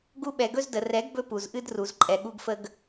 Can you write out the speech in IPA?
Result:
ɡu˧ɓɛ˨ɡɵ˧z də˨rɛ˨˦ɡ bɵ˦pu˨zʔɨ˦d ru˨zǃʼɛ˨ ɠu˧ɡfə˧ɡ

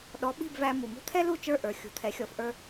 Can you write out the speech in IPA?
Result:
ɗɔ˩˥ɓi̤˥˩bvæ˧ mu˩mṳ˥t̪ʰɛ˥ lu˥˩t͡ʃə˞˥˩ ʔə˞˩ xʲṳ˩˥t̪ʰɛ˩˥xʲɔ˩˥f ʔə˞˧

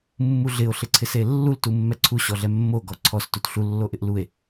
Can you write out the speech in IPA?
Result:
mːuɮɪo̯ ɬɪǀʰɪselːul tumːɛǀʰu ɕɔɮɛmːo ɡɔǀʰɔs tutɬu lːoʔɪʔlue̯

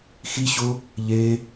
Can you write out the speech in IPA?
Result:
xiɕʊ | ʎe

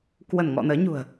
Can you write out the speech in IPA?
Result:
kwə˧˩nŋɔ̰˧˨ nəː˨˦ɲṳ˨˩ə̯

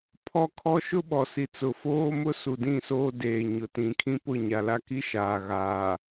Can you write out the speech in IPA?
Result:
pʰɔ˦kʰɔ˦ ʃʊ˦ɓɔ˨si˨t͡sʊ˨ foː˦mʊ˦ su˨dĩ˦˨soː˦deː˨ ɲʊ˨tĩ˨kʰĩ˦pʊ˦˨ ɲa˨la˦ki˦ʃaː˨ ɣaː˨

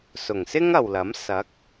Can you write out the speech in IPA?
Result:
sʊ˨˩ŋsɪ˥ŋ ɐ˨wlɐ˨˥m sɐ˨˥k̚

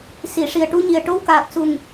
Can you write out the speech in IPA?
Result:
si˨˩˨ʂi˨˩ə̯ʈu˧ɲi˨˩ə̯ ʈo˧wkaː˨˩k̚ su˨˩ŋ

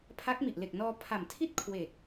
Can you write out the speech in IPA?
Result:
pʰa˦˥k̚mi˨˩ʔle˨˩k̚ nɔː˧ pʰa˨˩m tʰi˥˩t̚kʰwe˨˩k̚

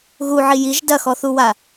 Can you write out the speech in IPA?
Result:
ɣuʕi jiʒ dɐxɔθuwa

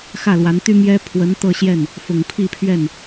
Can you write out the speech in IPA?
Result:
xä˥˩lwa˧˥nt̪y˥ mjɛ˥ pʰwə˧˥nt̪ɤ˥˧ɕjɛ˥˩n | fʊ˨˩ŋpʰi˥˧pʰɥɛ˥˩n

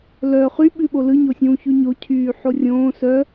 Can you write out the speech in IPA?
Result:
lœ χy ɓʉɓolɯ ɲosʲũːçʉɲo cʰyːħorʲõː sœ

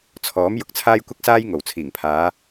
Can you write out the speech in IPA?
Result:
t͡sʰɔː˨˥m jʊ˨˥k̚t͡sʰaː˥jkʷɐ˥k̚saː˥j ŋo˨˩wt͡sʰiː˨˩ŋpʰaː˨˧

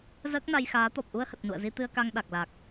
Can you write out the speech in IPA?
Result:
zəː˦˥k̚na˧jxaː˨˦ t̪ɔ˨˩p̚ʔu˧ə̯hə˨˩t̚ nṵ˧˨ə̯zi˧ t̪ɨ˧ə̯ka˧ŋ ɗa˨˩k̚la˨˩k̚

